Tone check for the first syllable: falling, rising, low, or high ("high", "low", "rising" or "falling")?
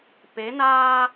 rising